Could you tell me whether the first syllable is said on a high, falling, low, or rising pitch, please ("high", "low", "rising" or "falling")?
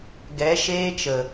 rising